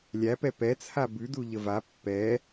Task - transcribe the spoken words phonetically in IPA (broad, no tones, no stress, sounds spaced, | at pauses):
lʲ æ p ɛ p ɛ t͡sʰ a b ʉ d u ʎ ə v a pː ɛ